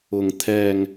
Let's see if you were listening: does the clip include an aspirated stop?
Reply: yes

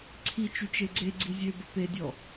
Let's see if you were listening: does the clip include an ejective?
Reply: no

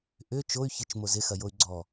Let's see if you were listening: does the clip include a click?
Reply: yes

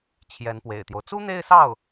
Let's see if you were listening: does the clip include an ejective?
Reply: no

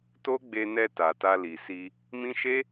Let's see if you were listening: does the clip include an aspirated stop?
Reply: no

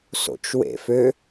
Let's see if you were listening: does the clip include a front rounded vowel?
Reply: yes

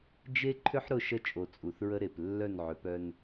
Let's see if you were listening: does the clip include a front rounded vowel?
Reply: yes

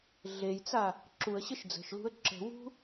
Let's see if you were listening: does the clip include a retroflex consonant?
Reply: no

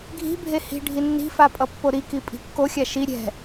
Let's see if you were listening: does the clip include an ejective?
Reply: yes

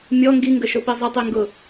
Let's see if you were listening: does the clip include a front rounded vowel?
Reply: no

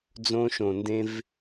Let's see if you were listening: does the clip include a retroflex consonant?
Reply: no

